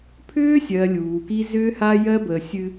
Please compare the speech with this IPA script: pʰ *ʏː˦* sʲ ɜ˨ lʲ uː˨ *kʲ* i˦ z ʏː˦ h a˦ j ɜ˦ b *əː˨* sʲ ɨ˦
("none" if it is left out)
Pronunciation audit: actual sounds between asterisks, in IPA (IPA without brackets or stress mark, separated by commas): ʏː˦, k, əː˨